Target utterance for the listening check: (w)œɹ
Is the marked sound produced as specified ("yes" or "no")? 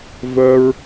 no